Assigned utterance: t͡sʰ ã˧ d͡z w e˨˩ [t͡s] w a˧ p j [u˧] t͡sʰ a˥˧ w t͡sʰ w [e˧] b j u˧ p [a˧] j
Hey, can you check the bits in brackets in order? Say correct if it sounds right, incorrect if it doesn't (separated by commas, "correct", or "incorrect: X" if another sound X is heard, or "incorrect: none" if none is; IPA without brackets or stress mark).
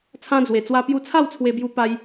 correct, correct, correct, correct